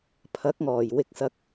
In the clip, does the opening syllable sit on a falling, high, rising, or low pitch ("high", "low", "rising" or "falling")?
rising